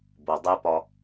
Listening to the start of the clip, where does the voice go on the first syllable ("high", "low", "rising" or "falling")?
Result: low